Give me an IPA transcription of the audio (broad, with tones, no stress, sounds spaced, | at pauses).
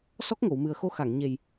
s ɔ˦˥ k̚ ŋ o˨˩˨ w m ɨ˨˩ ə̯ x o˧ x a˨˩˨ ŋ ɲ e˨˩ j